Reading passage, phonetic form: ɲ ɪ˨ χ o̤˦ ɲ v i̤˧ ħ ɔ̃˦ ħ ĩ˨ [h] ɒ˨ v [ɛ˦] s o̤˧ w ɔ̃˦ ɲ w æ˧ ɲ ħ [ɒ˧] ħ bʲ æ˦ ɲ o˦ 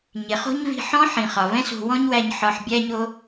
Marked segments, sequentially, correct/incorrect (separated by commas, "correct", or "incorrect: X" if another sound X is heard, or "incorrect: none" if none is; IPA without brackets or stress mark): incorrect: χ, incorrect: ɛ̃˦, correct